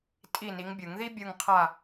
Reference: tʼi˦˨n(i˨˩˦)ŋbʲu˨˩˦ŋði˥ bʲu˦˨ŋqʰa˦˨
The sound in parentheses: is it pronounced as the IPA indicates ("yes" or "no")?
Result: no